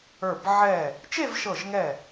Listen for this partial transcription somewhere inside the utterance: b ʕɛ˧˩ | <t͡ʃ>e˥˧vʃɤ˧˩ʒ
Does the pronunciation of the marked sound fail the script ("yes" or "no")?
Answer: no